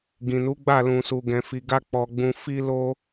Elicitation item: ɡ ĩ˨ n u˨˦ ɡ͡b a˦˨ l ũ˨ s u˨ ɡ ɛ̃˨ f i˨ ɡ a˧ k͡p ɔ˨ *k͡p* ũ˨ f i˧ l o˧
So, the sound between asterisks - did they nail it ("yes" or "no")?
no